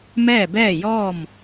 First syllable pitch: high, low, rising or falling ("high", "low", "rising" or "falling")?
falling